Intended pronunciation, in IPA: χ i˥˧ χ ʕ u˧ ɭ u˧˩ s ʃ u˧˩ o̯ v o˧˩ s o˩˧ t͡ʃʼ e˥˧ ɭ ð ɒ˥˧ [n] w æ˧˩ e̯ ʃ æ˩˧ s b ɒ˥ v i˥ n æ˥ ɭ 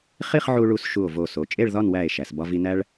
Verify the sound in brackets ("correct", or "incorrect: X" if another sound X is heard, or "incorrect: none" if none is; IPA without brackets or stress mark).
correct